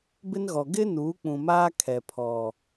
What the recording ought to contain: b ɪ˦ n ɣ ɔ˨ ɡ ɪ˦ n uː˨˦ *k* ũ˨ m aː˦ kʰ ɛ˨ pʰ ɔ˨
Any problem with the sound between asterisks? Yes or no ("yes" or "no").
yes